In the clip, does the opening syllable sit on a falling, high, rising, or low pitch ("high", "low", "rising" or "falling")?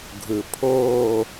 low